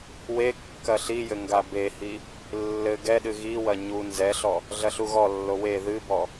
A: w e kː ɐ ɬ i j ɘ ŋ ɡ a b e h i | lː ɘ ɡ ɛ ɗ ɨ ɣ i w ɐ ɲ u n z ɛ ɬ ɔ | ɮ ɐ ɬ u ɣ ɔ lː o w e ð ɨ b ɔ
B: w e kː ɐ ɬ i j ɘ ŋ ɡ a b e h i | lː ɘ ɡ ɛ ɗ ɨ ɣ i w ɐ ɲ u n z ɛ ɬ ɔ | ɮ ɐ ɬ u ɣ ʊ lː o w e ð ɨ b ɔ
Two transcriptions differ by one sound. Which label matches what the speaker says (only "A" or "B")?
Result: A